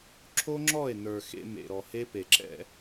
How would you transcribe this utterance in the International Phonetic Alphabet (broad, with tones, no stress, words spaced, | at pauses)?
ǁʰo˦ŋ͡ǁɔ˦˨e̯nə˞˨ xḛ˧ mḛ˨ɾɔ˨he˦ pe˨ǁɛ̰˧